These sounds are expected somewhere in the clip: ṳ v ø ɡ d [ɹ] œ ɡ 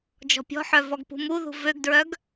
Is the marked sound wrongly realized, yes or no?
no